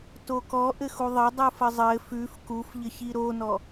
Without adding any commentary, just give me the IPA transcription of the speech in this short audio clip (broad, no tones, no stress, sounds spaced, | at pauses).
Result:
t o k ɔ ʔ ɘ x u ðˤ ɘ dˤ u f ə zˤ ɘ f ʉ f k u f ʎ ɘ ç i ɾ o n ɔ